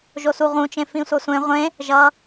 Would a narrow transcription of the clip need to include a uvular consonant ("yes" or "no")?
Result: yes